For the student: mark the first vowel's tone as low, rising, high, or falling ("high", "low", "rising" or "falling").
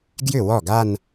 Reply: falling